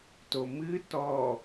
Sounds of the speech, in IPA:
t o m ɨ t ɔ

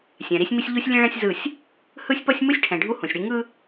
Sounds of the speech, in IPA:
sʲ ɛ̃˨ ɾ i˦ sʲ m i˦ sʲ ʎ u˦ sʲ lʲ ẽ˦ ɭ ɛ̃˦ sʲ z ɯ˦˨ sʲ | h ɯ˦ sʲ p ʌ˦ sʲ m ɯ˦ sʲ ʈʰ ɛ̃˨ ɖʱ u˦ h ũ˨ sʲ ɽ i˦ ŋ ɯ˦

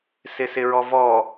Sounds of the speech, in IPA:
s ɪ s ɪ ɹ ɔ v ɔ

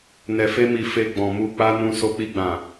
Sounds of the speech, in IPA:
n ɛ˧ f e˦ m i˧ f e˧ ɡ͡b ɔ̃˨ m u˧ k͡p a˦ n ũ˧ s o˧ k͡p i˧ ɡ͡b ã˨

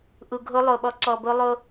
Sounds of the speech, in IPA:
ʔ u˨ ɡʱ o˦ lˠ o˨ ɓ ɔ˦ ǀ ɔ˨ b o˦ lˠ o˦

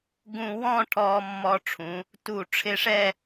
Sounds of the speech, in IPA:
ɡ ũ˧ w ɔ̃˥˧ ʈʰ ɔː˧ mː ɔ˧ ʈ͡ʂʰ ũ˩˧ | t u˧˩ ʈ͡ʂʰ ɪ˧ ʂ ɛ˥˧

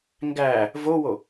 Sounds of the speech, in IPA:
ŋ ɡ æː | v o w o

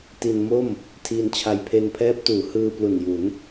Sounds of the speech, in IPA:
t i˧ n m o˥˩ m | tʰ iː˧ n t͡ɕʰ a˧ j pʰ e˧ n pʰ ɛː˦˥ p̚ t uː˩˦ h ɯː˧ p l u˨˩ n j u˩˦ n

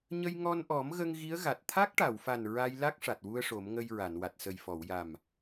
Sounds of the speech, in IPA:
ɲ ə˧ j ŋ ɔ˧ n ʔ ɔ˨˩˦ m ɣ ə˧ ŋ ɣ i˧˥ ə̯ ɣ a˨˩ t̚ t̪ʰ a˦˥ k̚ ʈ a˨˩˨ w f a˨˩ n ɹ a˧ j l a˦˥ k̚ ʂ a˨˩ t̚ w u˧ ə̯ ʂ o˨˩˦ m ŋ ə˧ j ɹ a˨˩˨ n w a˨˩ t̚ s ə˨˩ j f ɔ˨˩˨ w j a˨˩ m

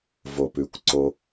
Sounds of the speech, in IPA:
v o˨ p ʉ˨ kʷ ǀ o˦

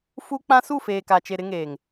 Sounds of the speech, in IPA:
f u˦ k͡p ã˦ s u˦˨ f eː˨ k a˨ t͡ʃ e˨ ɾ ɪ˦ ŋ eː˨ ŋ

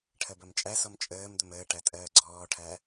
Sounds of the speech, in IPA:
ʈʰ ɜ b ɜ m t͡ʃʼ æ s ɔ m t͡ʃʼ əː m d̪ ə m əː ʈ æ tʼ ɜː ɡ͡ǀ ɔː ʈʰ æ

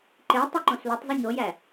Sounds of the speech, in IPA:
ǃ e tˤ o ǃ õ s l o tˤ zˤ u ɲ o j æ

